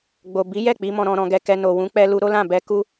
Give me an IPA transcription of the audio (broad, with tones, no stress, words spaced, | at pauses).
ɡ͡bo˨bi˨˦jɛ˦˨ k͡pi˨˦mɔ̃˧ɾɔ̃˧ ɾɔ̃˧ɡɛ˧kɛ˧ no˨wũ˨˦ k͡pɛ˦lu˦ ɾo˦lã˦˨ bɛ˧ ku˦